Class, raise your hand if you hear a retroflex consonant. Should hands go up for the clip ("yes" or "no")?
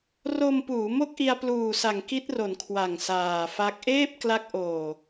no